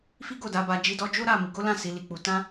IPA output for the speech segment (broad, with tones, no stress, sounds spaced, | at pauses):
f i˦ ɡ o˦˨ d a˨˦ b a˧ d͡ʒ i˧ d ɔ˧ d͡ʒ o˦ ɾ a˦˨ m i˨˦ ɡ o˦ l ã˦˨ s i˨˦ l i˧ k͡p u˧ t ã˦